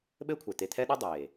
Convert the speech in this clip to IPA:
ɓ ɘː˦ kʷʰ ɛ˨ t̪ e˨ t̪ʰ ɛ˦ ɗ ɔ˦ dˤ eː˨

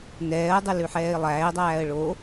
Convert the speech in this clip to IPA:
n ɛː ə̯ dˤ ʉ l ʉ ħ ɛː ɪ̯ lˠ æː ɪ̯ dˤ æː ə̯ ɭ o

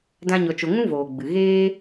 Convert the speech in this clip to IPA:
d ã˦ ɲ ɔ˧ t͡ʃ o˧ ŋ ũ˦ v oː˨ ɡ͡b ɨ˨ ɣ eː˦

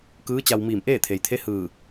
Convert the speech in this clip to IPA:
k ɯː˧˥ t͡ɕ a˧ w m iː˧˩ m ʔ eː˥˨ t̪ʰ e˩ j t̪ʰ e˧˥ h ɯː˧˩

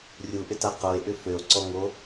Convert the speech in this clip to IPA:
rʲ u ʔ ʏ t a q o e̯ ʔ ʏ f ø o̯ ǀ ɔ ŋ o

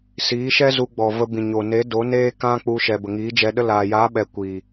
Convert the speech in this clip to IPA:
s iː˨˦ ʃ ɛ˦ z u˧ ɡ͡b ɔ˨ v ə˧ b ĩ˨ ɲ o˨ n e˨˦ d o˨˦ n eː˦ k ã˦ k͡p u˧ ʃ ɛ˨ b ə˨ ŋ iː˨˦ d͡ʒ ɛ˧ ɗ ə˦ l aː˨ j aː˨˦ ɓ ɛ˨ kʷ iː˨

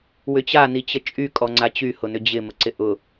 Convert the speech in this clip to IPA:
w ʏ t͡ɕ a n i t͡ɕ ə t͡ʃʼ y kʼ ɔ ŋ͡ǀ a t͡ɕ y h ʊ n ʏ d͡ʑ ɪ m ə ǀ ɪ ʔ ʊ

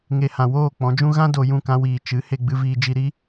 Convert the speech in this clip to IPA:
ŋ e˨ h ã˨ w oː˦˨ k͡p ɔ̃˨˦ d͡ʒ ũ˦ ɣ ã˦ d o˧ j ũ˦˨ k ã˧ w iː˨ t͡ʃ ɨ˨˦ h e˧ ɡ͡b ɨ˧ v iː˧ d͡ʒ i˧ ɾ i˦

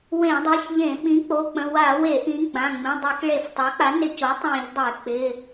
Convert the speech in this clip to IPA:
w ẽ˧˩˧ dˤ i˩˧˩ ç ʎ ẽ˧˩˧ ɓ ĩ˩˥ k͡p o˩˧˩ k͡p ə̃˩˧˩ w a˧˩˧ w e˧˩˧ ʔ ĩ˩˥ ɡ͡b ã˩˧˩ ŋ͡m ĩ˩˧˩ dˤ i˧˩˧ k ɭ e˧˩˧ f tˤ a˩˥ k͡p a˩˥ n ɪ˧˩˧ c o˩˥ tˤ ĩ˧˩˧ ʎ dˤ e˧˩˧ k͡p ɪ˩˧˩

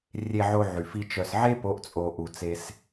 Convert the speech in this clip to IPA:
rʲ e˨ ʕ o˨ ʕ y˨ f i˧ t͡ʃ œ˨ s ʕ e˦ p o˨˦ ʔ t͡sʼ o˨ ʔ u˨ t͡s e˧ s

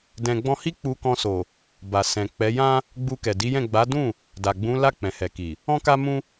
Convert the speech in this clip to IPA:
d ɛ̃˨ ɡ͡b ɔ̃˧ h i˦ k͡p u˧ k ɔ̃˧ s o˨ | b a˨ s ɛ̃˨ k͡p ɛ˨˦ j ã˦ | ɡ͡b u˧ k ɛ˨ d i˨˦ j ɛ̃˦˨ ɡ͡b a˨˦ d ũ˦˨ | d a˨ ɡ͡b ũ˨˦ l a˦˨ k͡p ɛ̃˨ h ɛ˨ k i˨ | ɔ̃˦ k a˦ m ũ˦

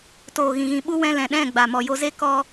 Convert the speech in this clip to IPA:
t oː˨ ɣ ĩ˨ ɣ ĩ˨ ɓ u˦ w ɛ̃˧ l ɛ̃˨ ɗ ɛ̃˦˨ ɡ͡b a˨ m ɔ˨ j o˧ z e˦ k ɔ˦

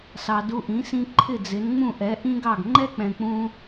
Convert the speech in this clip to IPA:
s ɑ˩ d u˧ ʔ ĩ˩˥ s ĩ˧ ǃʰ ɪ˥˩ d͡z ɪ˩˥ n ŋ͡m ũ˥˩ ʔ ɛ˩˥ ʔ ĩ˥ ɡ ɑ˥˩ ɡ ŋ͡ǃ ɛ˥ k͡p ɛ̃˩ k͡p ũ˧

